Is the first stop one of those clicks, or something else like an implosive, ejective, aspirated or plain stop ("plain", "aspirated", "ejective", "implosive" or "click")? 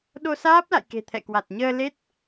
implosive